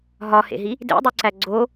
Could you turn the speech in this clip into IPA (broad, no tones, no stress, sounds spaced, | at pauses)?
ɦ ɒ h ḛ ɦ i | d ḛ dˤ u ǀ æ ɡ͡ǀ o